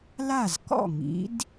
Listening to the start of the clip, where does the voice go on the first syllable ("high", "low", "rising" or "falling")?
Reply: falling